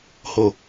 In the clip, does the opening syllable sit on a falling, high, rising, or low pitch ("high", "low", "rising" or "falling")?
low